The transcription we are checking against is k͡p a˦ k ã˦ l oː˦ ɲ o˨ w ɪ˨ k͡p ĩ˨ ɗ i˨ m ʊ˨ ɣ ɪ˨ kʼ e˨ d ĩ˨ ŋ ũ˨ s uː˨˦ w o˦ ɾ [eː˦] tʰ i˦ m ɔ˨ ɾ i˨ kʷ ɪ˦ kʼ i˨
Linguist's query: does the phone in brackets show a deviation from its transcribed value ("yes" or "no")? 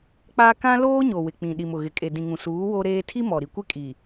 no